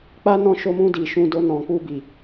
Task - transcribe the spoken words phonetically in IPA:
k͡p a˦ n ɔ̃˧ ʃ o˧ m ũ˧ d i˨ ʃ ũ˧ d o˧ n ɔ̃˨ k͡p u˧ b i˨

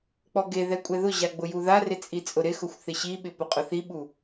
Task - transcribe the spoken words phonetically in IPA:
k͡p ɔ ɡ e ð ɛ kʷʼ ɛ ð ʊ ʑ a ɡ͡b ʊ j u ð a r ɪ t͡sʼ i t͡sʼ ʊ ɾ ɪ x ʊ xʷ θ ɪ ɕ i ɓ ɪ p ʊ qʼ ʊ θ i ɓ u

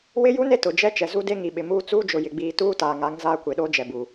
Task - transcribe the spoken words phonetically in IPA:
w ɪ˦ j u˦ n e˦ t ʊ˨ d͡ʒ ɛ˦ t͡ʃ ɛ˨ z u˦ d e˦ ŋ i˨ ɓ ɪ˨ m uː˦ t͡s uː˦ d͡ʒ ʊ˨ j ɪ˨ ɡ͡b iː˨ t uː˦ t aː˨ ŋ a˨˦ ŋ z aː˦ kʷ e˨ ɗ oː˦ d͡ʒ ɛ˨ b uː˨

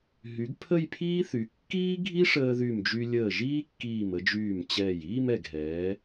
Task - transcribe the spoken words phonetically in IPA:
ɦ y˩˧ ɡ pʰ ə˥˧ j pʰ iː˥ θ y˩˧ kː iː˥ ɡʱ i˥ ʂ əː˧ ð y˧˩ m d͡ʒ y˧ lʲ əː˧˩ ʒ iː˥ kː iː˧˩ m ə˧ d͡ʒ yː˧˩ m t͡ɕ ɛː˧˩ j iː˥˧ m ɛ˧˩ ɡ ɦ ɛː˩˧

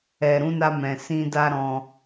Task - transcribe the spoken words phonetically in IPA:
ɛ˨ ɾ ũ˨˦ n a˧ m ɛ̃˨ s ĩ˧ d a˦ ɾ ɔ̃˧

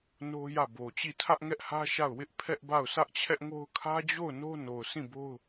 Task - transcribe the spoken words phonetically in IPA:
n o˦ j ä˦˨ b o˨ t͡ɕ i˦˨ tʰ ä˦ ʔ ŋ ɛ˦ ʔ h ä˦ ʃ a˦˨ ʊ̯ w ɪ˦ ʔ pʰ ɛ˦ ʔ b a˦˨ ʊ̯ s ä˦ ʔ t͡ɕʰ ɛ˦ ʔ ŋ o˦ ʊ̯ kʰ ä˦ d͡ʑ o˦˨ ʊ̯ n o˦ n o˨ ʊ̯ s ĩ˦˨ b o˦ ʊ̯

